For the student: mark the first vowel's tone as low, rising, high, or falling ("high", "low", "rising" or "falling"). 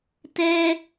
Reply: high